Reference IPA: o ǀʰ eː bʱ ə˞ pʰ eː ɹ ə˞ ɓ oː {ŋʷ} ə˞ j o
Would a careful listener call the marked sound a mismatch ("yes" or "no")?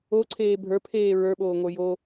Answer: no